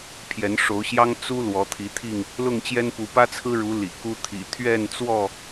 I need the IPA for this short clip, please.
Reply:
pʰjɛ˨˦nʂo˨˦ʊ̯ɕjɑ˦ŋ t͡su˦ lwɔ˨˦t̪ʰi˨˦t̪ʰi˥˨ŋ | lʊ˥˨ŋt͡ɕjɛ˦npu˨˦ pä˦t͡sʰɹ̩˦ ɻu˨˦ lḭ˨˩ku˦ t̪ʰḭ˨˩ t̪ʰɥɛ˥˨nt͡swɔ˥˨

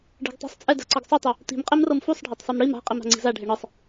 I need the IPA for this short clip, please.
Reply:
ɖi̤ɡtˤi̤sˤt͡sʼɛ da̤ǀɤɡsˤotˤu | ti̤mqʼemrɤm fusˤɖʱatˤsˤem ɽim a̤ qʼima̤ŋ͡ǀi̤za ɖʱeɳɯsˤ

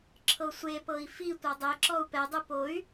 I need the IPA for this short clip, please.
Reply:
ǁʰɤsʷepɤi̯ fi tʷɤdˤeǁɔu̯ pɛdˤɯ poy̯

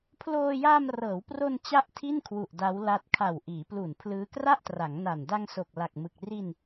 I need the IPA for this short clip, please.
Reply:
pʰloː˧ jaː˧mrɤː˩˦wpro˧n t͡ɕa˥˩ʔtʰi˥˩nkʰwu˨˩ʔ da˦˥wla˦˥t̚ kʰa˨˩wʔiː˩˦plu˨˩n pʰlɯː˦˥ kra˥˩ʔtra˩˦ŋ na˨˩n da˧ŋso˨˩k̚la˨˩k̚mɯ˨˩k̚ ri˧n

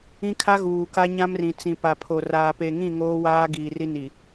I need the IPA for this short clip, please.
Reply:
ĩ˦kʰa˦ ɣuː˨ka˦ɲã˦mrĩ˨ t͡sĩ˨pa˨pʰo˨ raː˨pe˨ŋĩ˦˨ ŋoː˦waː˦ ɡiː˨ri˦ni˨

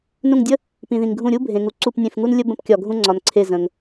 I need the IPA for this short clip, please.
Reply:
nũ˦˨ŋdʲə˥ | pĩ˨ðĩ˨ŋɡʱũ˦˨ɾʲu˥ bʱẽ˨ŋu˨ ǀu˦˨pnʲẽ˦˨fŋu˥nlʲə˥ bə̃˥pkʲɒ˦˨ɡʱũ˥ŋ͡ǀɒ˨n ǀʰe˦˨zə̃˨ŋ

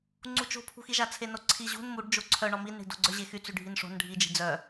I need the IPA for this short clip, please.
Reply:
ŋ͡ǀut͡ʃo̤pʰṳxi ʒat͡sʰenoǀʰi ʑṳn muɖ d͡ʒoǀʰœɳɔ minɳi̤do̤ɡ͡ǀœ ʑexy t͡syɖʱinʂo̤n ɖʱid͡ʒi̤ d͡zœ

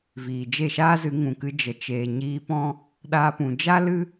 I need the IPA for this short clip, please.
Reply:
viː˨d͡ʒe˦˨ʃaː˦zɨ˨˦ ŋũ˨kɨ˧ d͡ʒə˨ t͡ʃeː˨ɲiː˧ pɔ̃˦ | ɗaː˧pũ˨ d͡ʒa˦lɨ˦

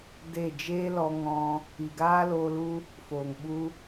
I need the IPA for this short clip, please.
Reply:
de˦˨ d͡ʒeː˦lɔ˧ŋɔ̃˧ | i˨ɡaː˦loː˧lu˦ | foː˨ŋɓu˦

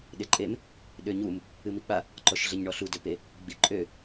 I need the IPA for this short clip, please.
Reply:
ɗeǃʼem | ɗøɲum | ɨmik͡pa | ǃɔʃɮeɲɳɔɬu døpe | ɡ͡biǃʼø

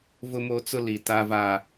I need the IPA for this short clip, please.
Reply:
vʊ˦mo˦t͡sʊ˦ li˨ ta˦va˦

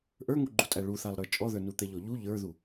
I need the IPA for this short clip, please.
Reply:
ʔə˞ŋuɡ͡ǃutʼæ ɭuθalˠ ɾə˞t͡ʃʼɔðə˞ nut̪ɛʎɔʎu ʎə˞ðu

